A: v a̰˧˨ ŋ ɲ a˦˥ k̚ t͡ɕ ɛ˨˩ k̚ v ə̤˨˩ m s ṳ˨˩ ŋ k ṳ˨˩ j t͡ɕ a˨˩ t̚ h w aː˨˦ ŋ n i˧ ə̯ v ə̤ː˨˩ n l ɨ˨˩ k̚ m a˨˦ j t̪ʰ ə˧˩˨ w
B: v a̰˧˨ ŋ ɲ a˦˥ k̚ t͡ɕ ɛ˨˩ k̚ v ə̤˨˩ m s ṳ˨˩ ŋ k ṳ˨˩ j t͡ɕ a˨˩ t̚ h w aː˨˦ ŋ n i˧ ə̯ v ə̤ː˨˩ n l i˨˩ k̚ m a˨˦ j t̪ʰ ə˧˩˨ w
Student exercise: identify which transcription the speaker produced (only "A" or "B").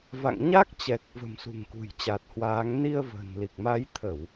B